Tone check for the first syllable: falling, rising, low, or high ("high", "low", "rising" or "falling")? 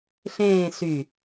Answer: falling